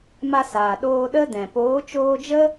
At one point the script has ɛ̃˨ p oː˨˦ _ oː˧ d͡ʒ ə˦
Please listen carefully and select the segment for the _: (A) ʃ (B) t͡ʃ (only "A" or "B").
B